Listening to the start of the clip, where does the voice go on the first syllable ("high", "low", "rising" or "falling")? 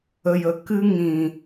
low